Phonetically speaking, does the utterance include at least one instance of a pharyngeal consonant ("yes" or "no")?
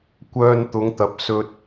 no